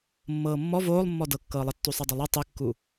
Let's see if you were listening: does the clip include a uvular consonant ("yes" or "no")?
no